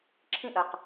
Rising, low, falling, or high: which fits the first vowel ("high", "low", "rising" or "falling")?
high